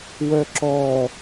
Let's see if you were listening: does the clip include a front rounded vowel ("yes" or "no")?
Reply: yes